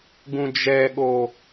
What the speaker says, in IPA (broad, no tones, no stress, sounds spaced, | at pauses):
ɡ ũ d͡ʒ ɛ ɠ o